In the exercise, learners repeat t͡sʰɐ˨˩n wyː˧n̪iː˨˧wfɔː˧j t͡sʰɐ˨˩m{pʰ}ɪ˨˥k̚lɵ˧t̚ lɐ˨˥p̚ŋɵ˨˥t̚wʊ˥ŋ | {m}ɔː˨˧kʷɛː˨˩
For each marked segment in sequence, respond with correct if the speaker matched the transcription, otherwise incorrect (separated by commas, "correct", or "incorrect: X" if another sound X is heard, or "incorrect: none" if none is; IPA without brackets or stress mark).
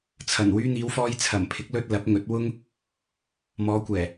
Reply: correct, correct